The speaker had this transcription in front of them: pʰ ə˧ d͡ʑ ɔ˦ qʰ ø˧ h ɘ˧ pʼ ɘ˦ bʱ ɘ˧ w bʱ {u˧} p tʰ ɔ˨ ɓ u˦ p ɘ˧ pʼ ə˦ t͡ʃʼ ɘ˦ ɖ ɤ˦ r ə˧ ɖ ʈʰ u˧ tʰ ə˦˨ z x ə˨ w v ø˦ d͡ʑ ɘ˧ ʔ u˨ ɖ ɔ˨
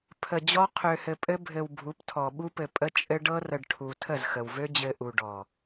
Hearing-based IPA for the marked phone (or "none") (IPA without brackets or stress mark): u˨˦